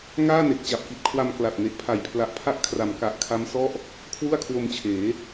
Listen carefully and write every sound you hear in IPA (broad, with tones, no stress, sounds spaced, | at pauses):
ŋ aː˥˩ n e˨˩ k̚ t͡ɕ a˨˩ p̚ k i˨˩ t̚ kʰ w a˧ m k l a˨˩ t̚ n e˨˩ ʔ pʰ a˨˩ j pʰ l a˨˩ ʔ pʰ a˦˥ ʔ kʰ r a˩˦ m k a˨˩ ʔ kʰ a˦˥ m s ɔ˥˩ ʔ | kʰ w u˥˩ a̯ kʰ w o˧ m t͡ɕʰ eː˩˦